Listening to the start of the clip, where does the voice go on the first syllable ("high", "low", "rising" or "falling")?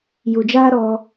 low